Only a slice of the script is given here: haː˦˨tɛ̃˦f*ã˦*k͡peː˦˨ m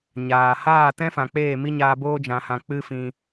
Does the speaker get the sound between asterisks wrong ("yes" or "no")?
yes